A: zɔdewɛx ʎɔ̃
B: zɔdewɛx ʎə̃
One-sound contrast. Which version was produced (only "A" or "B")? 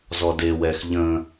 B